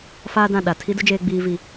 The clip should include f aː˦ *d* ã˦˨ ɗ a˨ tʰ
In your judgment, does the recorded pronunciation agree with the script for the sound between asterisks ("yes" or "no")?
yes